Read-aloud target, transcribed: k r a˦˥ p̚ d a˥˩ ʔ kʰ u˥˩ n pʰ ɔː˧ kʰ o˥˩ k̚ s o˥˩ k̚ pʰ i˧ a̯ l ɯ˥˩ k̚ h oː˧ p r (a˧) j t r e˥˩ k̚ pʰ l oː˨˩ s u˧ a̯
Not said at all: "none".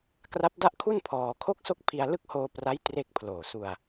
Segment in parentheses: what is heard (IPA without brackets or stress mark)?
a˦˥